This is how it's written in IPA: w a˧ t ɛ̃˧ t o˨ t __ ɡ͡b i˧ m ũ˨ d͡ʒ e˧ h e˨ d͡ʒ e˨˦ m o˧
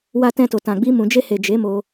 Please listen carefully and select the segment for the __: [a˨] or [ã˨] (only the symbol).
ã˨